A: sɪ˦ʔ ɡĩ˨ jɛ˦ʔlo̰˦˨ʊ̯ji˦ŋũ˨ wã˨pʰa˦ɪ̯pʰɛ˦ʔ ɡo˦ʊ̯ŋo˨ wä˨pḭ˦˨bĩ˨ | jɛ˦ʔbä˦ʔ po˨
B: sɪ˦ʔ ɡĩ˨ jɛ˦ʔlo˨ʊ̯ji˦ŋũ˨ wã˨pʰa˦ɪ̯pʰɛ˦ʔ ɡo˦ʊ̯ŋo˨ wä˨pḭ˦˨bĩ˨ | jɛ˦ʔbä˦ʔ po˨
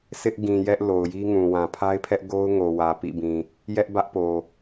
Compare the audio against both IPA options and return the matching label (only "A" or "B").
B